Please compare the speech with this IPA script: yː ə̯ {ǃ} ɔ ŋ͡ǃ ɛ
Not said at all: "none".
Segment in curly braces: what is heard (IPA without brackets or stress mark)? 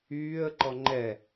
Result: ǃ